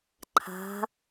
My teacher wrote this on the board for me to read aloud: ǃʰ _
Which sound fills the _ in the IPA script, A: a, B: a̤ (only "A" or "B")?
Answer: B